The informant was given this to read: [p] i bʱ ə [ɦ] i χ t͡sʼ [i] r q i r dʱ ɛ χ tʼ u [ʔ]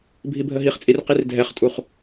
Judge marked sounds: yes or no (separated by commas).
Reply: no, yes, yes, no